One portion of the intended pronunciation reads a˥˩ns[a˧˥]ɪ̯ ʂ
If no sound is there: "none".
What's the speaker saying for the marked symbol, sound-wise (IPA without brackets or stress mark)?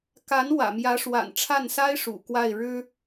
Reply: a˥